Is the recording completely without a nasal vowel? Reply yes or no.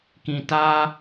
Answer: no